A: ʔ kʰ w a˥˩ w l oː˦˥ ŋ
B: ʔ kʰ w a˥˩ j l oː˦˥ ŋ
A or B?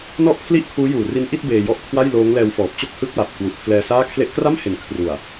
B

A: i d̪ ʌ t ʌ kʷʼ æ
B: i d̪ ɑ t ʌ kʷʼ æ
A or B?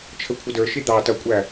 B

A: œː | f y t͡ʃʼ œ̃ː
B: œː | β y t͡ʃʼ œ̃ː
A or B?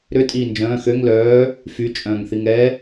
A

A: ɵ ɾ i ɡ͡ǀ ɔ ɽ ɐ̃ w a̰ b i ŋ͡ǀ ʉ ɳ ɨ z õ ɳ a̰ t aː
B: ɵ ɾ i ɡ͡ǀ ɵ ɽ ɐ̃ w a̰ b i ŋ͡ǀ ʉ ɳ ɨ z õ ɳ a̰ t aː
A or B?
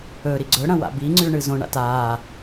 B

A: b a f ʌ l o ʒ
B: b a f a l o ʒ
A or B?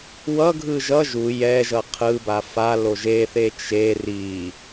B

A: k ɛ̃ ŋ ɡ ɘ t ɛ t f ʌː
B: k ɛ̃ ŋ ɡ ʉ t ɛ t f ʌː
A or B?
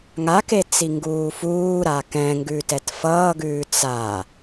B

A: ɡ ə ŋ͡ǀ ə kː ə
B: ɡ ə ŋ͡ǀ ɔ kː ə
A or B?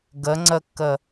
A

